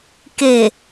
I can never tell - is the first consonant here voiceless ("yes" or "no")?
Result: yes